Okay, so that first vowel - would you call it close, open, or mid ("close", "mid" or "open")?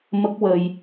mid